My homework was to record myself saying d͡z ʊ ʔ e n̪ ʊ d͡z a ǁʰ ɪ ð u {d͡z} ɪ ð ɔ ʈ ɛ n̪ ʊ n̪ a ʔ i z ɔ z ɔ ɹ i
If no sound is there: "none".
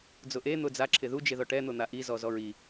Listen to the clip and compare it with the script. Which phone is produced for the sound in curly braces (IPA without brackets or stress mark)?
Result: d͡ʒ